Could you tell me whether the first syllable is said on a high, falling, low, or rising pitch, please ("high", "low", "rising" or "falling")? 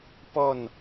falling